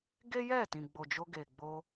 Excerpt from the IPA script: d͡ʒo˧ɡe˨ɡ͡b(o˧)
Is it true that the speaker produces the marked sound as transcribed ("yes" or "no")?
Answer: yes